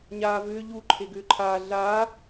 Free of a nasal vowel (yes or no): yes